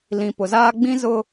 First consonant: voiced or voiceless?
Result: voiced